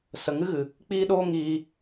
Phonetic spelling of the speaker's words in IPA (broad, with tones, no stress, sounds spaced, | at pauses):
s ə˨ ŋ ɨ˦ ɣ ɨ˨ | k͡p iː˦ ɗ oː˦ ŋ iː˧